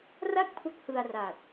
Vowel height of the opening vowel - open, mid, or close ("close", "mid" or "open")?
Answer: open